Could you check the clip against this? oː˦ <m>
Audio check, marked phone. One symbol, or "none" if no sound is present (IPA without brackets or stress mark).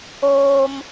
m